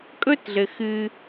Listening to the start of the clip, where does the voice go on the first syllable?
high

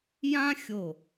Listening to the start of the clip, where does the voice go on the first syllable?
high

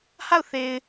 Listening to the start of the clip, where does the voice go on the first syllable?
falling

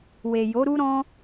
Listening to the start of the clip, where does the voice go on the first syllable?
low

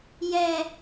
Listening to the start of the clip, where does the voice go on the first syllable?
high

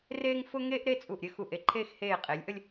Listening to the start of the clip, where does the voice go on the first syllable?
high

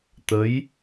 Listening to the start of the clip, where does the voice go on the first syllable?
rising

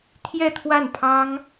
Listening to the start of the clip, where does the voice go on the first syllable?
falling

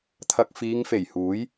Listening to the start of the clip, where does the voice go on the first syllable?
low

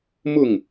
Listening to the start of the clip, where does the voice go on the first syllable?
falling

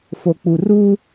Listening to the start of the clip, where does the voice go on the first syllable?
low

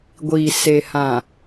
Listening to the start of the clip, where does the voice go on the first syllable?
low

